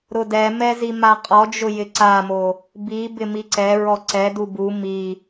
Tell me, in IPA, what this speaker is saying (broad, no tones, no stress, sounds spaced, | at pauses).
ɾ ʊ d ɛ m ɛ z i m a qʼ ɔ d͡ʒ ʊ j ɪ ǀ a m o | b i b ɪ m i ǀ ɛ ɹ ɔ ǀ ɛ d u b u m i